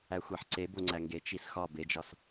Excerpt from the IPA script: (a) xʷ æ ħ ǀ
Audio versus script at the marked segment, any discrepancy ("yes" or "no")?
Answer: yes